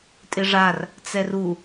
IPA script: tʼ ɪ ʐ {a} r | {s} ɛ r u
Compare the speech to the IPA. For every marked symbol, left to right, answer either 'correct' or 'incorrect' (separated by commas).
correct, incorrect